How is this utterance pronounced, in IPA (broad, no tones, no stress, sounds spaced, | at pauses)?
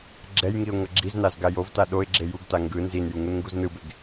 ɡ͡ǁ ɛ j ŋ i ʊ̯ ŋ ʌ ɡ͡ǁ i z n a z ɡ a j o v t a ɗ o ɪ̯ ɡ͡ǁ e j u ɡ t a ŋ ɡ ɯ n z i n j u ŋ u n ŋ ɡ u z n ɯ b e ɡ